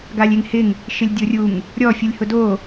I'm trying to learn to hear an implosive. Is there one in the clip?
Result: no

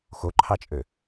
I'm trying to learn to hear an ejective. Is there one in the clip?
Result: yes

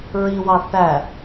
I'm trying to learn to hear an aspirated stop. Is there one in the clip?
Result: no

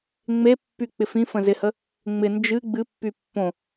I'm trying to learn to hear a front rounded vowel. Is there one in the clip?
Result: yes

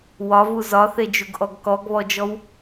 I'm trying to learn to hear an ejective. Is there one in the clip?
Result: no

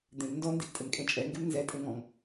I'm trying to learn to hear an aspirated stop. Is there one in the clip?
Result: no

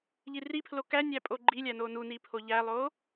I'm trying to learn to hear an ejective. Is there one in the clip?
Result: yes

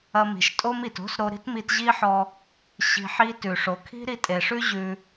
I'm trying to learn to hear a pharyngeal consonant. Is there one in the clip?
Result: yes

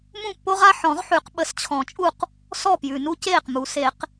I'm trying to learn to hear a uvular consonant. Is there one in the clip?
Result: yes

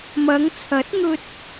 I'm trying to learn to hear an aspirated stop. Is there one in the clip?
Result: yes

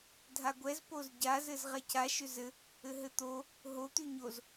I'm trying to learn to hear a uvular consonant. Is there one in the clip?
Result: yes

